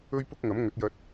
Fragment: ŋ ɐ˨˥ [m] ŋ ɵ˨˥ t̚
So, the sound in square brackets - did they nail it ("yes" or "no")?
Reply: yes